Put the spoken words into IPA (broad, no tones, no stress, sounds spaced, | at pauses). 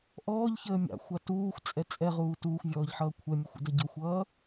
ʔ ɔː ʎ ç əː mʲ ɑ̰ xʷ ɑ t uː xʷ t͡sʼ ɛ t͡sʼ ɛ ʁ uː t uː xʷ vʲ ɔː ʎ ħ ʌː kʷʰ ɛ mʲ u xʷ ə̰ d ʌ ɟ ʊ xʷ ʌː